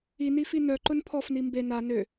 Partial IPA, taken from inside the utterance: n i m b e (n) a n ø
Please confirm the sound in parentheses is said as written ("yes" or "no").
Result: yes